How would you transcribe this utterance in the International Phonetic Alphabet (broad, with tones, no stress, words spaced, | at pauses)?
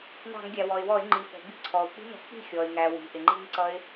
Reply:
nɑ̤˧˩˧ŋɡʲæ˩wɔ˩ɪ̯wɔ˧˩˧ɪ̯ ŋ͡ǃi˩fɔ̤˩bi̤˥˩ ǀʰɔ˩ʊ̯k͡pi̤˦˥nɔ̤˧˩˧ k͡pi̤˥˩ xʲɔ˩ɪ̯ŋæ˩wi̤˩ ʔɪ˩ŋ͡ǃi˦˥ŋǀʌ˦˥ɪ̯